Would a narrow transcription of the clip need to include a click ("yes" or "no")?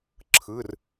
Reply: yes